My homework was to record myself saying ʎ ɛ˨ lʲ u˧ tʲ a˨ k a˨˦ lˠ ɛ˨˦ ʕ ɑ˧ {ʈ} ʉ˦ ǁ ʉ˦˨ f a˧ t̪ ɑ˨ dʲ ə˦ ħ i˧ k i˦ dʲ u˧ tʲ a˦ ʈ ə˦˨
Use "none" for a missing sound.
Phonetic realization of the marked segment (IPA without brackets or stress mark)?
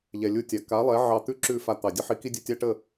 t̪